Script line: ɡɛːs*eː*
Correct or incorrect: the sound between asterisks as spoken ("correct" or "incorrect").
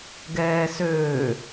incorrect